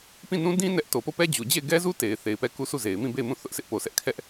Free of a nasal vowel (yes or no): no